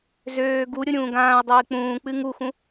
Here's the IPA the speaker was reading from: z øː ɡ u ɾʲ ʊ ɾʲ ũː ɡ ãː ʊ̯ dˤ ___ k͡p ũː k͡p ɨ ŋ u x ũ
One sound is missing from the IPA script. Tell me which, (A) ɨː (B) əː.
A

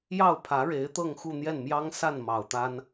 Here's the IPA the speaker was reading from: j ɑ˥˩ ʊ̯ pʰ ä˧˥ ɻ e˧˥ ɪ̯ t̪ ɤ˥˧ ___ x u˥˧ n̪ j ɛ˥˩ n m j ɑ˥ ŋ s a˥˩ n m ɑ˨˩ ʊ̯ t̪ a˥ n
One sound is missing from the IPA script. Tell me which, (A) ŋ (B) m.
A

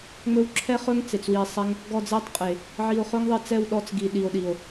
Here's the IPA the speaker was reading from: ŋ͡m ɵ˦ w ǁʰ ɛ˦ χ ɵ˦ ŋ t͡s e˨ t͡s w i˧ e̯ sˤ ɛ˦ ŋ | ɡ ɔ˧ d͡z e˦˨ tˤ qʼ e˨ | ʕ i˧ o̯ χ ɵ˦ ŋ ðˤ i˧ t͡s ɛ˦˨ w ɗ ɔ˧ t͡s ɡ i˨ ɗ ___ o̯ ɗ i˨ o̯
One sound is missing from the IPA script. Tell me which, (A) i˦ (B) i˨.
B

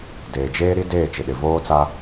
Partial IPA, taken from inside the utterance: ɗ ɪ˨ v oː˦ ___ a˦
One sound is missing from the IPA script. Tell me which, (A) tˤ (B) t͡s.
B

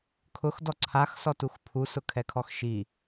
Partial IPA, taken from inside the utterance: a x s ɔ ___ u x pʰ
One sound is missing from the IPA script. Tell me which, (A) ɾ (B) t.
B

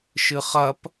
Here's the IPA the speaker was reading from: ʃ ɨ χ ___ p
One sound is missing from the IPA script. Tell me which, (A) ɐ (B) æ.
A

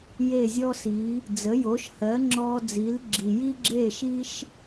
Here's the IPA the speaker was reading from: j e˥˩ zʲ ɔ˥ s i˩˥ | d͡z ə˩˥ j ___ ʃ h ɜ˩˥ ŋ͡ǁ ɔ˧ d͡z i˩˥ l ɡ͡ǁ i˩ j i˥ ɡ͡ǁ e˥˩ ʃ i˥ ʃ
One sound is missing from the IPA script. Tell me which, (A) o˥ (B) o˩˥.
B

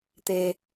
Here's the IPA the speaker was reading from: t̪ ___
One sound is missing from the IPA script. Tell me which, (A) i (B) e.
B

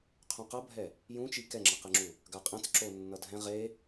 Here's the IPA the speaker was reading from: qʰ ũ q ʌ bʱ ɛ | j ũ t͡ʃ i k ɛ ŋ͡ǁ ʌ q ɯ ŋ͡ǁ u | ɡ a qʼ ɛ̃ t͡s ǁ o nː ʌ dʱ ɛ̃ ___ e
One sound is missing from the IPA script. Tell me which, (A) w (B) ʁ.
B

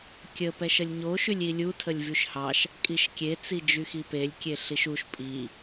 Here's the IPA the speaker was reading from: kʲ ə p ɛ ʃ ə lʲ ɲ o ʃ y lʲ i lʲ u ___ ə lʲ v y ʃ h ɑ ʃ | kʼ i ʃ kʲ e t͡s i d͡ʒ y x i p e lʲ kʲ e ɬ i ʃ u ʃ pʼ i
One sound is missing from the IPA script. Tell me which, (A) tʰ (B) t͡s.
A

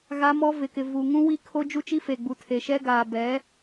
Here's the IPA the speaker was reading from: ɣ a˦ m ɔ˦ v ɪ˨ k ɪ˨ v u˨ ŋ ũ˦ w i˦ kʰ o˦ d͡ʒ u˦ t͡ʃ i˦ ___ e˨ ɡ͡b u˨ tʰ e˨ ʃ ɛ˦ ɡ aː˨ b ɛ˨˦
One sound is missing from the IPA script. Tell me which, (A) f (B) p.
A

